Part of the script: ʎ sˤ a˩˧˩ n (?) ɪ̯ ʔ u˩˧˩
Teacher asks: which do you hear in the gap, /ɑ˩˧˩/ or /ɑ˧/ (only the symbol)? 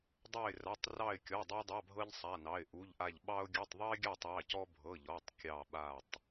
ɑ˩˧˩